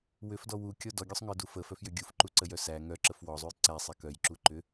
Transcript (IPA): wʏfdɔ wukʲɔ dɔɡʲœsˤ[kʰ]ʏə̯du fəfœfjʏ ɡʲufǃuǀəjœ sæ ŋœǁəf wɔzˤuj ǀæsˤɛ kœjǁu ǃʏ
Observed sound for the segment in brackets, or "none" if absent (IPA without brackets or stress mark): ŋ